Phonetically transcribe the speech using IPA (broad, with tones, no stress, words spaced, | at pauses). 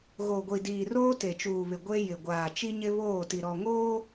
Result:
ɣo˨ɡʷi˨diː˨ roː˦te˨t͡ʃuː˨βɪ˨ ɡʷe˦jɪ˨ ɡʷaː˨ t͡ʃi˦ɲɪ˦βoː˦˨ti˨ ɾɔ˨ŋoː˦